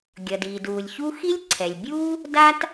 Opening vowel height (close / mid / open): mid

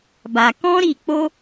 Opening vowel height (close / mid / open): open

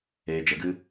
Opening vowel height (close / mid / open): mid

